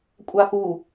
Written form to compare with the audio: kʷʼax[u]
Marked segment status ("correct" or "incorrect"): correct